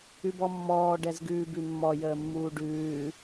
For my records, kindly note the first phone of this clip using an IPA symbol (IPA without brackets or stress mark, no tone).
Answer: ʉ